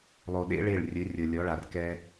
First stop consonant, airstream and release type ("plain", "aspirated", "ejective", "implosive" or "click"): implosive